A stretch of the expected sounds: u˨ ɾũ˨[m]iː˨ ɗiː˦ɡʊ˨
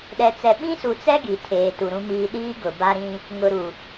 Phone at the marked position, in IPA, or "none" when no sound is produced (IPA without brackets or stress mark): m